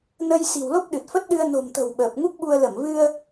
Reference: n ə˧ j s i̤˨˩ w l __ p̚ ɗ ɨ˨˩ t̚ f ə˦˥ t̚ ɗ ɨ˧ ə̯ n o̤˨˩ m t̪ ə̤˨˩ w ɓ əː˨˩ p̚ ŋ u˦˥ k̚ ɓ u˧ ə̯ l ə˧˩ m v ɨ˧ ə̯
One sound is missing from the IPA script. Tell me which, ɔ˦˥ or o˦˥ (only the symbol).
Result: o˦˥